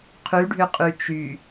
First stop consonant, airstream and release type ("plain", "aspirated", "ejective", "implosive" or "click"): aspirated